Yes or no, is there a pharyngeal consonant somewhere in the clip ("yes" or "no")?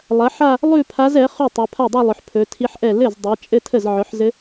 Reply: yes